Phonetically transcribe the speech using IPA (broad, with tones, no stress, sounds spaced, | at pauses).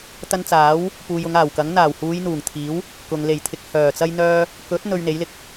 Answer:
t̪ ɐ˧ n t͡s aː˨˥ w | p uː˨ j ʊ˨˧ ŋ aː˨˩ w k ɐ˨˥ ŋ n̪ aː˨˩ w h uː˨˧ j n̪ uː˨˩ ŋ t̪ʰ iː˨˥ w | k ʊ˨ ŋ l e˨˩ j t̪ʰ ɪ˨ k̚ h œː˨˩ t͡s ɐ˥ j n̪ œː˥ | k ɵ˨˥ t̚ n̪ ɵ˧ ɥ n̪ e˨˥ j l ɪ˧ k̚